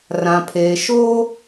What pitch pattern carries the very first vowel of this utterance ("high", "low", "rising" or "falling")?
low